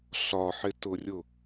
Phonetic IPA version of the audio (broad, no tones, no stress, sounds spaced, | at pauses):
ɬ ɒ ħ ɪ t ʊ rʲ ʊ